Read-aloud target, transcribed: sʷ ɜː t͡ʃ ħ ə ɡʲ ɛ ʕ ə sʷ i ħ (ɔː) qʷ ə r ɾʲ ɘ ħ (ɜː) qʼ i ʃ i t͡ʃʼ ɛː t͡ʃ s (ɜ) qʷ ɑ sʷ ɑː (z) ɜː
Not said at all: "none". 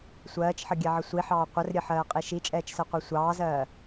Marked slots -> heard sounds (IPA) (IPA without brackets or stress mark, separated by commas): ɑː, ɜː, ɜ, z